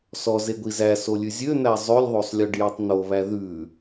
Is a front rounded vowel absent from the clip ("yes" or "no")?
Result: no